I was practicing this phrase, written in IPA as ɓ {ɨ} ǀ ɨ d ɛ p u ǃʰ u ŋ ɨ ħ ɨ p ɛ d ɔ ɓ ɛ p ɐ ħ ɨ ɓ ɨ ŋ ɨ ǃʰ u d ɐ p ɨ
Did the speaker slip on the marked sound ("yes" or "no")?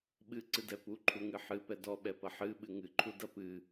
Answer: no